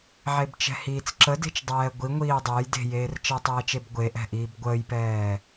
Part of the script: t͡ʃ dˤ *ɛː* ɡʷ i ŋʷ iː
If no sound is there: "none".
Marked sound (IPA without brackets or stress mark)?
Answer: ɛː